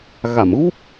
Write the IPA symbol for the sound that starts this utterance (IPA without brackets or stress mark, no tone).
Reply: ɣ